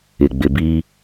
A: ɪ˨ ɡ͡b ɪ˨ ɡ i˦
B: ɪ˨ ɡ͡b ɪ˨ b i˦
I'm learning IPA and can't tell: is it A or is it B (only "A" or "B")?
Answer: B